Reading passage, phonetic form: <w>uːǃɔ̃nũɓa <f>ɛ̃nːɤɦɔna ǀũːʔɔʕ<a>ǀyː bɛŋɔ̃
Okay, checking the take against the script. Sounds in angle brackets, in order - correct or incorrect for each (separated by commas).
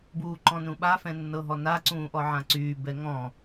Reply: incorrect, correct, incorrect